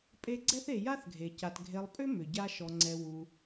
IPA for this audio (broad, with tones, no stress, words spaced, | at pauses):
pʼe˦ɡ͡ǀɛ˥θe˨ ja˥θɡʱe˩ca˨t ɡʱe˨lˠpʼʏ˥ mʏ˩ ɟa˦ʃɔ˨ŋ͡ǀɛ˨ wu˨